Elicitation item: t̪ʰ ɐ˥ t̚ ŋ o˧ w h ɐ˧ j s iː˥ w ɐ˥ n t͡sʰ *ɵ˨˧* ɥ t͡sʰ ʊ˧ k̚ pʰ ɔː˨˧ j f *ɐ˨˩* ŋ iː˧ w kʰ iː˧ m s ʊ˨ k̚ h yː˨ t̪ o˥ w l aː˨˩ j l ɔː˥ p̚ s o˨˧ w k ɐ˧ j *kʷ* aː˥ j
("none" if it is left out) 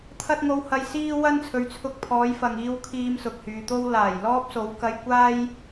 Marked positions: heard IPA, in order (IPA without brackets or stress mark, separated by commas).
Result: ɵ˨˧, ɐ˨, kʷ